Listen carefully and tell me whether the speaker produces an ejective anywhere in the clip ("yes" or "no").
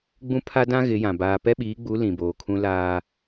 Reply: no